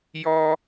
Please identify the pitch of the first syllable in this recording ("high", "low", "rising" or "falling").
high